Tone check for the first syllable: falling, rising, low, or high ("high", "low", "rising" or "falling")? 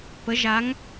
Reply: rising